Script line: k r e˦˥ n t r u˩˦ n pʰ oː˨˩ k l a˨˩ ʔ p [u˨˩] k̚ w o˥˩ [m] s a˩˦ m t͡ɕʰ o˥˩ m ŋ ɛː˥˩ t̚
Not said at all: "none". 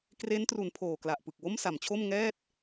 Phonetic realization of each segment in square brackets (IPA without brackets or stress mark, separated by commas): ɯ˨˩, m